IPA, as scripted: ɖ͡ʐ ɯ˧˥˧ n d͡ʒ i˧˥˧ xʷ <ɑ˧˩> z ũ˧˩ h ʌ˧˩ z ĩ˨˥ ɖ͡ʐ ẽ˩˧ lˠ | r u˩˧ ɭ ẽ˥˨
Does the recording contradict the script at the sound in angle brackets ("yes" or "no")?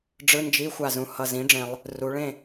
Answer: yes